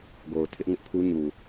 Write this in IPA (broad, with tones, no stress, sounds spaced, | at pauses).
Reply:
ɡ o˨ ʊ̯ tʰ ɪ˦ ʔ ŋ ɪ˦ ʔ pʰ u˦ ɲ u˨